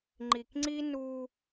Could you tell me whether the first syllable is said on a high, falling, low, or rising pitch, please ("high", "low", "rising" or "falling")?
low